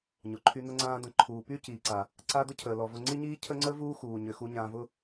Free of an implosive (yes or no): yes